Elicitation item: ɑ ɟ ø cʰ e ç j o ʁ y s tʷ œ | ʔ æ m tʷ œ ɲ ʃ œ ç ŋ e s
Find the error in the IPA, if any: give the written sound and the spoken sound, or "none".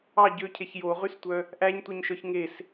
m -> ɲ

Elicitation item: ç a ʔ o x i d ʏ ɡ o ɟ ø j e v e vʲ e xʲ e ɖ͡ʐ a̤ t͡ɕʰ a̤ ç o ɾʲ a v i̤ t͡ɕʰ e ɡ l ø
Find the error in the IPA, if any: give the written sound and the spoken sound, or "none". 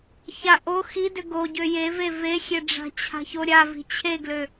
vʲ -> v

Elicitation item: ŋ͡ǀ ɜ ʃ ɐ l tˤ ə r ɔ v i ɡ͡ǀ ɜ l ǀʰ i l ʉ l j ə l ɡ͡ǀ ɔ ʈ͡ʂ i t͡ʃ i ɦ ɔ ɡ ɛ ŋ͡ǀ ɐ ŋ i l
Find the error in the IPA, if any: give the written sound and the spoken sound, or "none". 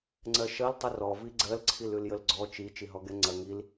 ʈ͡ʂ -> t͡ʃ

